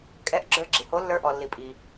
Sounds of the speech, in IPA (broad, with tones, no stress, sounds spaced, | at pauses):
kʼ ɛ˧˥ ʔ ɡ͡ǁ ə˞˧˥ ɡ͡ǁ i˩ h o˧˥ lː ə˞˧˥ ʔ ɔ˩ lː i˩ pʼ i˩